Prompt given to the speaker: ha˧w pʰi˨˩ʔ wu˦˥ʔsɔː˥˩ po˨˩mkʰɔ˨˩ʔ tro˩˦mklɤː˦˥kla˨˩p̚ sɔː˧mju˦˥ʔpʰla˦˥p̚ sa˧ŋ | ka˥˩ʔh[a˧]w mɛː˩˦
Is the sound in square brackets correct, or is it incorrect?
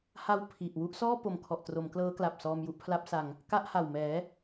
incorrect